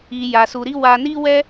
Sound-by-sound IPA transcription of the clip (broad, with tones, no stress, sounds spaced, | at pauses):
i˧ j a˧ s u˧ ɾ i˦ w a˧ n i˦ w ɛ˦